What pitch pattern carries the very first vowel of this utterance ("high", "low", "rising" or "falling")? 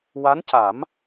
rising